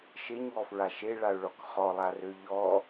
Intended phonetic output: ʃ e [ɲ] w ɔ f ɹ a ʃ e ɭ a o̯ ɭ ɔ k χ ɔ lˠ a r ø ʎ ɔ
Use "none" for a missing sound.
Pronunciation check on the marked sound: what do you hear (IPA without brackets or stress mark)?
ɲ